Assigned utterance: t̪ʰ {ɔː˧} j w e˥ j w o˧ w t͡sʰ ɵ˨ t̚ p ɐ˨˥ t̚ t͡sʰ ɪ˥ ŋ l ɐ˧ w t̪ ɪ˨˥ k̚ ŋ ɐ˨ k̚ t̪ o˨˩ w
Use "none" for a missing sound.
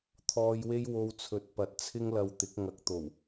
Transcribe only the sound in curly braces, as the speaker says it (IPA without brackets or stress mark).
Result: ɔː˧